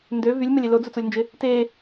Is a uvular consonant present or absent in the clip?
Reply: absent